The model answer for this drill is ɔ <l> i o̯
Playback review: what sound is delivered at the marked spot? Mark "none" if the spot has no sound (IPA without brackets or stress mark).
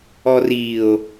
r